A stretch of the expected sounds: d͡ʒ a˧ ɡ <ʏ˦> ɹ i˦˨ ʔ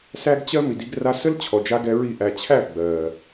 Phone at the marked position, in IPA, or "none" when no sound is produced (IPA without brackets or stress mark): ɛ˦